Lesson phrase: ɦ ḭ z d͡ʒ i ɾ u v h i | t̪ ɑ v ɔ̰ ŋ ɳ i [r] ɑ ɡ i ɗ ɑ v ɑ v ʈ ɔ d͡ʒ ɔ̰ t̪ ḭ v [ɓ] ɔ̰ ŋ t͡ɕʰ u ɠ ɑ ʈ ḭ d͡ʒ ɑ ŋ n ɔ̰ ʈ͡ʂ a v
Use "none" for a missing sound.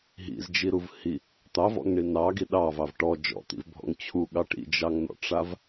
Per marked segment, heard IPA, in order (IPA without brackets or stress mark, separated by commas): n, bʱ